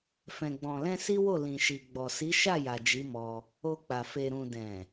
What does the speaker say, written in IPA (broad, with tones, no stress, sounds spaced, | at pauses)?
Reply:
f ɛ̃˨ ɡ͡b ɔ̃˨ l ɛ̃˧ s i˦ w o˦˨ l ĩ˨ ʃ i˨ ɡ͡b ɔ˨ s i˨˦ ʃ a˦˨ j a˨ d͡ʒ i˨˦ m ɔ˧ | o˧ k͡p a˨ f e˨ ɾ ũ˨ d ɛ̃˨